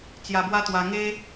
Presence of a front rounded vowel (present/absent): absent